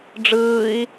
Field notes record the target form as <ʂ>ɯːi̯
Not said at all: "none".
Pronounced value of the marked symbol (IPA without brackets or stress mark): ɖ͡ʐ